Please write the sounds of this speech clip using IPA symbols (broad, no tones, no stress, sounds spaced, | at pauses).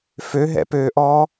f ø ɦ ɛ̰ p øː ʔ ɔː